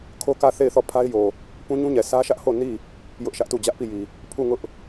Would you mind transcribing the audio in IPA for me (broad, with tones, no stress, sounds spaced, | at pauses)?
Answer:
kʰ o˦ k ä˦˨ θ e˦˨ ɪ̯ θ ɔ˦˨ pʰ a˦ ɪ̯ j o˨ | p ũ˦ ɲ ũ˦ ɲ ɛ˨ s ä˦ ʃ ä˦ ʔ h o˦˨ n i˦˨ | j ʊ˦ ʔ ʃ ä˦ ʔ t u˦˨ d͡ʑ ä˦ ʔ p i˦˨ j i˨ | pʰ u˦˨ ŋ ʊ˦ ʔ